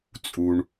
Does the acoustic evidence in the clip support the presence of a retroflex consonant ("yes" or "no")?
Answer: yes